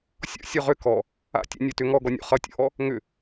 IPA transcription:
sʲɔ̰sʲo ʁʏ kɔ | a̰ tʲo̰nʲɔtʏ ŋɔɡɔnʲo̰ χʌtʲo̰ʔɔ | ŋʏ

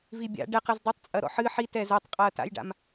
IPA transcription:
vibʲa̰ ɖɛqɨz dˤɛtˤt͡sʼɐ ɾɔ̰ħɨ ħitɛ zɛtˤqʼaɐ̯ta̰jɖa̰m

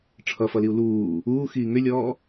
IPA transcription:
ʈ͡ʂʰʌfʌliu̯ luː | uːxiː ŋʏlʲɔː

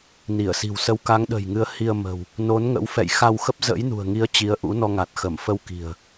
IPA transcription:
ni˧˩ə̯si̤˨˩wsə˨˦w ka˨˦ŋɗə̤˨˩jŋɨ˨˦ə̯ hi˧ə̯ mə̤˨˩w | no˨˦nŋə̰˧˥w fɛ̰˧˨jxa˧wxə˦˥p̚ zə̰˧˥jnṳ˨˩ə̯ŋi˨˦ə̯ t͡ɕi˨˦ə̯ʔṵ˧˥nɔ˧ŋa˨˩t̚ xə˧˩mfə˧wki̤˨˩ə̯

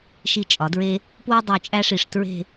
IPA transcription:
ʃi˧˩t͡ʃʼɒ˩˧dɹe˧ | pwu˥dˤu˧˩t͡ʃʼæ˥ʂi˧˩ʂ tɹe̤˥˧

